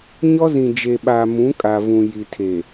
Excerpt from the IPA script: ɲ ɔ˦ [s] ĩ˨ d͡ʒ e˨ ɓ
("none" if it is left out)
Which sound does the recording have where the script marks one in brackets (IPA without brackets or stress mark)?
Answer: z